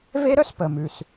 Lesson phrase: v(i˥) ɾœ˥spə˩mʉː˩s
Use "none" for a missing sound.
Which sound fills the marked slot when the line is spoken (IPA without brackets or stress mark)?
e˥